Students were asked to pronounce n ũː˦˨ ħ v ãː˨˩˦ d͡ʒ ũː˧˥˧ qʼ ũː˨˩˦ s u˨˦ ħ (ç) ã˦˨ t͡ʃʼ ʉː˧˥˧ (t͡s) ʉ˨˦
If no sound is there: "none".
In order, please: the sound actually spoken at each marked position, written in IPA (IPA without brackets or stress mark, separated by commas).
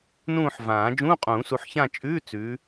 ç, t͡s